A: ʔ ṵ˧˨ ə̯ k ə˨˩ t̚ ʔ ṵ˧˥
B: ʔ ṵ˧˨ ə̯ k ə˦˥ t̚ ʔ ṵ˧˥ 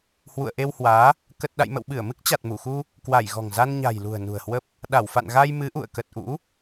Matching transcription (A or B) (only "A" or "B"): A